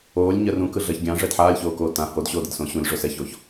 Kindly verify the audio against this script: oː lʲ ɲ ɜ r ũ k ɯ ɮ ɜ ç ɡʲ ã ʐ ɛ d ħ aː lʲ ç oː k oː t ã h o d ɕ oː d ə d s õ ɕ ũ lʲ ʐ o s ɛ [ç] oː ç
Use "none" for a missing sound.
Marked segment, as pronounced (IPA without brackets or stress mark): ç